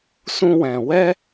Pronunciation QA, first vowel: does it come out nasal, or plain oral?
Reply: nasal